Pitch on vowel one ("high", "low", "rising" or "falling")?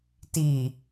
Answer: low